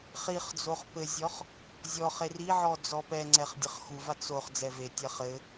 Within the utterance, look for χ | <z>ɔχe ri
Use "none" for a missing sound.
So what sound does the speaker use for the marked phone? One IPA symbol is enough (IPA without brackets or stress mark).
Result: zʲ